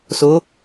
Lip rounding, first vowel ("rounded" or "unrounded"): rounded